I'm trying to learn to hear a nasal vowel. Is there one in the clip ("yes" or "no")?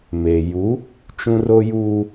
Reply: yes